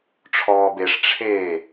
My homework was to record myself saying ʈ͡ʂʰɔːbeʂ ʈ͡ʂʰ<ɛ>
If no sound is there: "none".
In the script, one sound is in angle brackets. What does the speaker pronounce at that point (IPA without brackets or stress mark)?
e